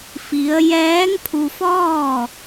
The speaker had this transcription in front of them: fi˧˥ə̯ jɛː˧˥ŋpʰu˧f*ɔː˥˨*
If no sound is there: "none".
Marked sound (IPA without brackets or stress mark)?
ɔː˥˨